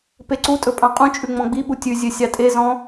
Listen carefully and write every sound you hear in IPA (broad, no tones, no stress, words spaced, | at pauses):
peǀutʼɵ pʼɑ̃qʼũt͡ʃʼʉ ŋ͡mɔ̃ɡ͡biɓu tʲʉzʲø sʲɑtʼezɔ̃